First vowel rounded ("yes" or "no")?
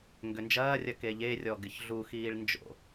yes